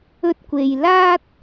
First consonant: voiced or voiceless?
voiceless